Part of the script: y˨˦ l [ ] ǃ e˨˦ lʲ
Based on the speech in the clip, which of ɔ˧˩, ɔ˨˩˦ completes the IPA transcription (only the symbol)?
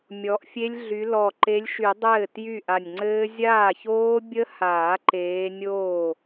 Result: ɔ˧˩